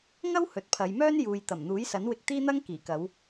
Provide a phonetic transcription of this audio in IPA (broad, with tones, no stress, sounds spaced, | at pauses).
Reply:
ŋ ɐ˥ w h ɵ˨ t̚ pʰ ɐ˨˧ j m œː˥ n j uː˨ j t̪ ɐ˨˩ m n̪ uː˨˥ j s ɐ˨˥ n w ɪ˧ k̚ t̪ iː˥ n̪ ɐ˥ ŋ k iː˨˩ k ɐ˨˧ w